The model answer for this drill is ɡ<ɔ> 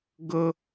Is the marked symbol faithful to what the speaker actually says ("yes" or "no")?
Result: no